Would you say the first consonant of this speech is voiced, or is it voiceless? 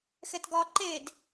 voiceless